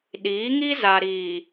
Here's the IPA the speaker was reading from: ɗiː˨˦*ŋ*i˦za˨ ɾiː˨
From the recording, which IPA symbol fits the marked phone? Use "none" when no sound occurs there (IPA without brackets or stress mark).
ŋ